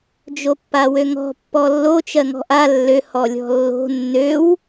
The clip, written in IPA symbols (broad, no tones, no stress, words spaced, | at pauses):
d͡ʒopːawøŋɔ̤ pːɔlːo t͡ʃɜŋɔ̤ʔa lːø hɔlʲɔ̤lːo̤ nːøw